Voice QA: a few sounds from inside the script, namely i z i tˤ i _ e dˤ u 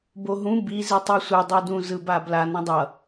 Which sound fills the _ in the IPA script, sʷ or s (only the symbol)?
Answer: sʷ